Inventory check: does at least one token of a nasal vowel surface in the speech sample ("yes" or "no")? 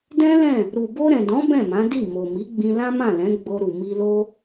yes